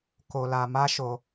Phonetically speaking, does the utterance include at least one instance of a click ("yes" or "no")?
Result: no